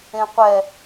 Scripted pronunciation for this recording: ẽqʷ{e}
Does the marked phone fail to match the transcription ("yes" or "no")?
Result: yes